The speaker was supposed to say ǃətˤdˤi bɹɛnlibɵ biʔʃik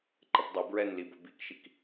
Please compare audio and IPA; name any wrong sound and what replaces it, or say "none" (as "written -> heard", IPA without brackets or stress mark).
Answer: ʔ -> k